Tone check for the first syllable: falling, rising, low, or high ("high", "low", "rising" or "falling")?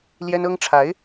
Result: high